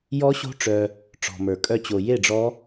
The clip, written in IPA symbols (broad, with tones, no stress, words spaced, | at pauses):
jɔ˦˥ɕo̤˦˥ʈ͡ʂœ˧ | ʈ͡ʂɔ̤˧mə˞˧kʼœ˥˧ t͡ɕo˧je˥˧ɖ͡ʐɔ˦˥